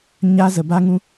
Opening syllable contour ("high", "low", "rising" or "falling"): high